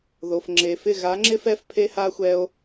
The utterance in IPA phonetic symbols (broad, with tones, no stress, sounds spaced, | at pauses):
ð o˨ f ŋ͡ǁ e˨ f ɪ˦˨ ɣ a˨˦ ŋ͡ǁ ɪ˦ f ɛ˧ f pʰ e˦ h a˦ xʷ ɛ˦ o̯